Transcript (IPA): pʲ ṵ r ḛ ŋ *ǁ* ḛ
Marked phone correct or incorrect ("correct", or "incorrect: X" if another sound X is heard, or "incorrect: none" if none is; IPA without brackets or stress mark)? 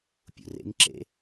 correct